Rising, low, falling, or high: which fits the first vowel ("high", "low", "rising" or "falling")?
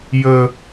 low